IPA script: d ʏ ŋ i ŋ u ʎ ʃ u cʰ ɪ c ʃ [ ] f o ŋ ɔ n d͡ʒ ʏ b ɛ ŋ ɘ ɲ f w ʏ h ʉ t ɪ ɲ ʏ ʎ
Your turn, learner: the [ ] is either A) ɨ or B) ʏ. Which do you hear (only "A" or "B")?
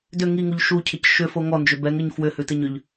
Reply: B